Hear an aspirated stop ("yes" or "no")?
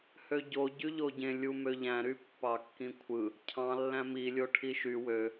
yes